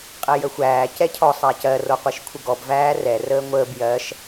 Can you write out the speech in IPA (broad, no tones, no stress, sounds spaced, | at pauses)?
qʼ ɛ j ə xʷ æː c ɛ cʰ ɔ sˤ æ c ɜ r o qʷ i ʃ kʷʰ ə ɡ ɔ b v æː r ɛ r əː ŋʷ əː b j ɜ ʃ